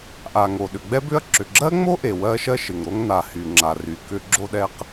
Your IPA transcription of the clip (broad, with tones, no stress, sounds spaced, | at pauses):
ʔ a˩ ŋ o˩ ɗ ʏ˩ ɡ͡b ɛ˥ b ʏ˥ ɐ̯ ǁ ʏ˩ ɡ͡ǁ ɜ˥ ŋ͡m o˥ ʔ e˩ w ɜ˥ ʃ ɜ˥ ʃ ɪ˩ ŋ ɾ o˥ ŋ n a˩ h y˩ ŋ͡ǁ a˩ r y˩ k ʏ˥ ɡ͡ǁ o˥ ɗ ɛ˥ q